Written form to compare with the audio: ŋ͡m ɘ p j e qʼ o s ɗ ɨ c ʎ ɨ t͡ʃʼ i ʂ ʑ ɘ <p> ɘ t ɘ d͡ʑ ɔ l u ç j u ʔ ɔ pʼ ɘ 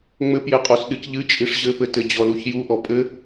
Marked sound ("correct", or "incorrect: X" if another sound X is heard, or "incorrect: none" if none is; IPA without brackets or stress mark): correct